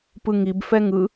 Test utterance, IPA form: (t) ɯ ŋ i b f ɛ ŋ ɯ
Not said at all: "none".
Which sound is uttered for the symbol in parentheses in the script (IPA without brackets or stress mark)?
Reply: p